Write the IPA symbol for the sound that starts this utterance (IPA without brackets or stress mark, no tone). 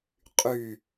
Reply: qʼ